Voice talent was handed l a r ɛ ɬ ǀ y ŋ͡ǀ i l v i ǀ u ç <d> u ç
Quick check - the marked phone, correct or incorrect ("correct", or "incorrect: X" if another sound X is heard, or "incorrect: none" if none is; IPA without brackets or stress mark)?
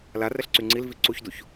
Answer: correct